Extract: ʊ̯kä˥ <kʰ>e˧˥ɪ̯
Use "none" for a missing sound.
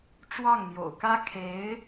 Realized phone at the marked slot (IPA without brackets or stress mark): kʰ